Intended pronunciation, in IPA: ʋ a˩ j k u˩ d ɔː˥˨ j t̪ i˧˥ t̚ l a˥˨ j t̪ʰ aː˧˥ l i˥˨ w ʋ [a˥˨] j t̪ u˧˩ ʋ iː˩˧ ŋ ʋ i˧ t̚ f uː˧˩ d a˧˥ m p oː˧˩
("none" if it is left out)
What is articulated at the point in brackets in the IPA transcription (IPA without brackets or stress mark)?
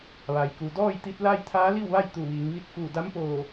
a˥˨